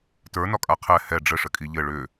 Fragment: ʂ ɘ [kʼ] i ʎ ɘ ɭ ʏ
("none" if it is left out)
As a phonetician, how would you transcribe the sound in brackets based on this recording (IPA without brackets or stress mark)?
kʼ